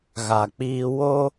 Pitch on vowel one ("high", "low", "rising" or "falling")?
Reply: low